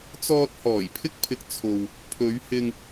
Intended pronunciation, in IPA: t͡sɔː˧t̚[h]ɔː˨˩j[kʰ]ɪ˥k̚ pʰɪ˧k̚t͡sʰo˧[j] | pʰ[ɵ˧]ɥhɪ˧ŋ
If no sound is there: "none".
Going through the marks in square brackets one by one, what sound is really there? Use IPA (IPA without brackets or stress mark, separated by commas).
h, pʰ, w, ɵ˨˧